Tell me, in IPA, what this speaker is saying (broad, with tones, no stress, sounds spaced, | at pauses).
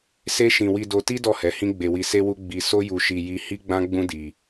s e˦ ʃ ĩ˧ w i˧ d o˧ t i˦ d ɔ˦˨ h ɛ˨˦ h ĩ˦ ɡ͡b e˧ w i˧ s e˦ w u˦ ɡ͡b i˧ s o˦ j u˧ ʃ i˧ j i˦ h i˦ ɡ͡b ã˦ ɡ͡b ũ˦ d i˧